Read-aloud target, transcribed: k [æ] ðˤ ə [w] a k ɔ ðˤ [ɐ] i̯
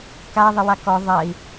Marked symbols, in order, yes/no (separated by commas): no, yes, yes